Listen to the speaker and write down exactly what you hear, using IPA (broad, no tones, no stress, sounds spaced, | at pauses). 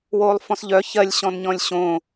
w oː lˠ f ɔ̃ s ʎ œ ç ɜ lʲ ɕ ɔ̃ n ɲ ɔ̃ lʲ ɕ õː